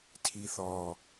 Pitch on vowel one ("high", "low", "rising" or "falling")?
low